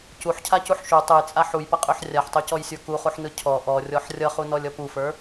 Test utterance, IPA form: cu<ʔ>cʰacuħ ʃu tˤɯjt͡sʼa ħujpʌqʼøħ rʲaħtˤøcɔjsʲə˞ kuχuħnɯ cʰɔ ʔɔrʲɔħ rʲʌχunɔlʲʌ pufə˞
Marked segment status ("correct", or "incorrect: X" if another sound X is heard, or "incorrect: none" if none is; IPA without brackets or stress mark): incorrect: ħ